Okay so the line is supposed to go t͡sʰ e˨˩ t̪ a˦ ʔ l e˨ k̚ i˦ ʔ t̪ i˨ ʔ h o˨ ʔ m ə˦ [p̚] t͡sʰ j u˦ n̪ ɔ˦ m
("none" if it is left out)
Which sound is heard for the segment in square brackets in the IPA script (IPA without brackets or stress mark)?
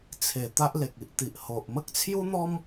k̚